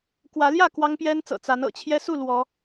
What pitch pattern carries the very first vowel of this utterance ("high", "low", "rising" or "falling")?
rising